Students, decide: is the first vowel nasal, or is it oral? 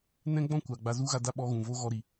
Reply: nasal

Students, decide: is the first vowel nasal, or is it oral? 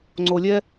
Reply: oral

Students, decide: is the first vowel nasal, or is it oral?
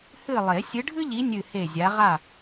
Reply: oral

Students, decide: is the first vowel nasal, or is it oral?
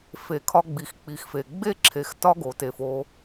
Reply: oral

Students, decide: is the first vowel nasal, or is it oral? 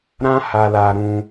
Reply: nasal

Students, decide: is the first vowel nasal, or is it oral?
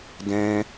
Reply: nasal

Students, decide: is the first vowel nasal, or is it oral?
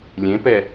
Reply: nasal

